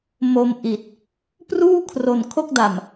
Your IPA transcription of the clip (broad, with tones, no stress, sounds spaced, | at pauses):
m o˧ m ʔ i˨˩ t̚ | p r uː˥˩ kʰ r o˨˩ n kʰ o˥˩ k̚ d a˨˩ m